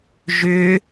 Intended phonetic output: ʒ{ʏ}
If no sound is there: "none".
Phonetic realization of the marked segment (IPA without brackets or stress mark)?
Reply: ʏ